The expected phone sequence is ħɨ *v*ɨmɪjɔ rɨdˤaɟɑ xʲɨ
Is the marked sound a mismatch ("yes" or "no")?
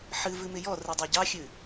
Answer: no